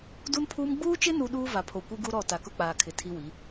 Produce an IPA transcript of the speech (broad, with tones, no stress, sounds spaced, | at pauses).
d u˦ n pʰ uː˦ m ɡ͡b uː˦ t͡ʃ ɪ˦ n u˦ ɗ uː˦ v a˨ pʰ o˨ kʷ i˦ ɡ u˦ ɾ ɔ˦˨ t a˨ k ʊ˦ k͡p aː˨ kʰ ɪ˨ tʰ i˦ w i˨˦